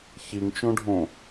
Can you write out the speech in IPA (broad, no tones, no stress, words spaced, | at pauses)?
çiŋt͡ʃõɖʱõ